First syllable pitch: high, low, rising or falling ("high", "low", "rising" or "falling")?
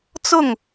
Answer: falling